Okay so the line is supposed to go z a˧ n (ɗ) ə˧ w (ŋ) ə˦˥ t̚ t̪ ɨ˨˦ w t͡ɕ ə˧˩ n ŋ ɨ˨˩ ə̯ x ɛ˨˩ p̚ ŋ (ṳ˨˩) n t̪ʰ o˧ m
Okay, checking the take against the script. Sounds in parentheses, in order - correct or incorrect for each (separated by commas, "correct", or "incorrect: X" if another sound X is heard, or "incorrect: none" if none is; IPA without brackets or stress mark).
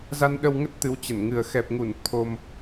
correct, correct, incorrect: u˧˩